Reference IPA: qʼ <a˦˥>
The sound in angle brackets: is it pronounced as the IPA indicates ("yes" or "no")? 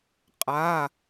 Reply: no